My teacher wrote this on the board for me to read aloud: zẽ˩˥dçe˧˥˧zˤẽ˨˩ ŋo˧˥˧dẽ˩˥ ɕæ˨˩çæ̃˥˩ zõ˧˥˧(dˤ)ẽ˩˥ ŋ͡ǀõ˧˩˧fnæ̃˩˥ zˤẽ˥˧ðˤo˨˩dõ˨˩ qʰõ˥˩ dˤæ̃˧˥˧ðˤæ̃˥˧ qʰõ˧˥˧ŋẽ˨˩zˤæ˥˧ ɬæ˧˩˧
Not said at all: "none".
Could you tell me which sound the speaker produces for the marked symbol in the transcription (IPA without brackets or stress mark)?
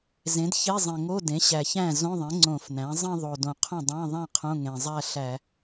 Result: ðˤ